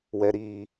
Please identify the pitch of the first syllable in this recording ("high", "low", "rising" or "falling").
low